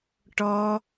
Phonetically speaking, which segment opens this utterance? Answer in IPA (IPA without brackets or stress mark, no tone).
ʈ